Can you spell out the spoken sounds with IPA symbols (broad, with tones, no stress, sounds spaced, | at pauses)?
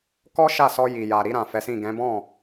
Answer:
k ɔ˦ ʃ a˦˨ s ɔ˧ j i˨ j a˨ ɾ i˧ ɾ ã˨ f ɛ˨˦ s ĩ˦˨ ɡ ɛ̃˨˦ b ɔ̃˦˨